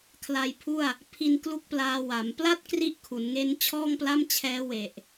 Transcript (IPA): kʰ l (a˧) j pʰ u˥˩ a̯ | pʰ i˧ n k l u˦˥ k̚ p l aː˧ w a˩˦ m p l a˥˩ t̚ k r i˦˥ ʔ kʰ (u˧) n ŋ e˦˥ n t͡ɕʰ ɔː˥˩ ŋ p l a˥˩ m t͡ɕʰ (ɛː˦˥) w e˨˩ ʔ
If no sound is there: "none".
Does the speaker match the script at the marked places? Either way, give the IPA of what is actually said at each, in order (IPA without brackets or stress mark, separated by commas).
a˧, u˩˦, ɛː˦˥